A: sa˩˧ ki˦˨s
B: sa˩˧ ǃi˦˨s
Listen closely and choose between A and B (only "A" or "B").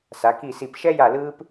A